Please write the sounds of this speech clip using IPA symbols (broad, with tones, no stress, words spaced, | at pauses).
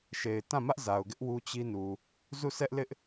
ʃe˨ɪ̯tã˦˨ mä˦ʔza˨ʊ̯ɡɪ˦ʔ wu˦t͡ɕi˦ nu˨ | zu˦˨sɛ˦ʔ lɪ˦ʔ